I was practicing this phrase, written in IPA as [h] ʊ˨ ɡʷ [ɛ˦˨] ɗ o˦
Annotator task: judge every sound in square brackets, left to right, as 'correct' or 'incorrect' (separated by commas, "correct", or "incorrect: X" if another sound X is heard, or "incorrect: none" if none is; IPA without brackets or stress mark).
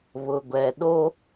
incorrect: β, incorrect: ɛ˨